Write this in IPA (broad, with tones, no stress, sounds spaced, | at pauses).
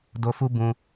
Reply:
d o˧ f u˦ b ũ˧